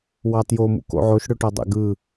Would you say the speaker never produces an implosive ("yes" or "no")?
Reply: yes